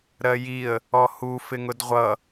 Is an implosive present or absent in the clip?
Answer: absent